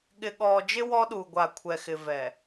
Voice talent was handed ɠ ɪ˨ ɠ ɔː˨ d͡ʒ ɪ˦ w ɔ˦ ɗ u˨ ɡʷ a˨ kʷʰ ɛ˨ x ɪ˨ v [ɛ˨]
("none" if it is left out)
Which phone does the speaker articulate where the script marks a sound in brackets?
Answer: ɛ˨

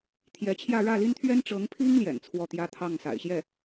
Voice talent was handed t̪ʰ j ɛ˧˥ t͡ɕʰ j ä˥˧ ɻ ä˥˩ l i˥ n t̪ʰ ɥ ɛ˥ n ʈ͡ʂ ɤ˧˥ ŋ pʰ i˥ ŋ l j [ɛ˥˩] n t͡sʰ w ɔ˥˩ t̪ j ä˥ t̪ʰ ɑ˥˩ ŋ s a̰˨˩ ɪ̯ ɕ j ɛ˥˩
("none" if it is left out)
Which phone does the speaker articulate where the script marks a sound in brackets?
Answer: ɛ̰˨˩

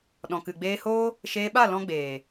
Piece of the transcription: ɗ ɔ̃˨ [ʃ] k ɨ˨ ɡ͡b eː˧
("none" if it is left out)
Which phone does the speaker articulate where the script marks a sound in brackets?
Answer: none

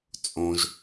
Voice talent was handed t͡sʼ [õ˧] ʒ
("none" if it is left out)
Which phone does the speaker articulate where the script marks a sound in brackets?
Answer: õ˧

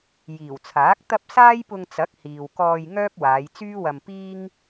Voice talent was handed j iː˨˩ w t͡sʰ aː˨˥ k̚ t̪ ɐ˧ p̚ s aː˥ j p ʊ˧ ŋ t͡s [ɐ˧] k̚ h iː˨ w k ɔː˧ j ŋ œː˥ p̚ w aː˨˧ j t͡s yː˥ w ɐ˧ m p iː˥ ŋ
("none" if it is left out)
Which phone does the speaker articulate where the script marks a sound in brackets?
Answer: ɐ˨˥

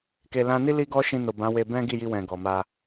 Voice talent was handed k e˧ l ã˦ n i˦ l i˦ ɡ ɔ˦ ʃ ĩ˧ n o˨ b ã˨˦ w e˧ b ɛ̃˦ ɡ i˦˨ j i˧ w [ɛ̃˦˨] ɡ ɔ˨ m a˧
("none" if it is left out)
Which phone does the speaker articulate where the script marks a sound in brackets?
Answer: ɛ̃˨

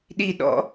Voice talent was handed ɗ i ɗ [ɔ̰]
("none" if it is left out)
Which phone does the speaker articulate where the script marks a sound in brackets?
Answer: ɔ̰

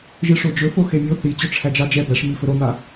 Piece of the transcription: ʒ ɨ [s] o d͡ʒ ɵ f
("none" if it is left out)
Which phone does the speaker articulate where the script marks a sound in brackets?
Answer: ʂ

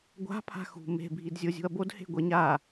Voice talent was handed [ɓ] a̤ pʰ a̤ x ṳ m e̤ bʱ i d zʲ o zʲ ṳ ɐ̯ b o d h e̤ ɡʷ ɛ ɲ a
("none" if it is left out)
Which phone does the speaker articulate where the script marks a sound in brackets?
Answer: ɡʷ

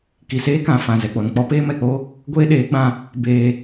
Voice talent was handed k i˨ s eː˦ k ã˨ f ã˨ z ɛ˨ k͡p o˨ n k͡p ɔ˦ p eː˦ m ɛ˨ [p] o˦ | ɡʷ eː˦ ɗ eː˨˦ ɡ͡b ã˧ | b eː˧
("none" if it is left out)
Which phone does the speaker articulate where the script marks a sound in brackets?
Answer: k͡p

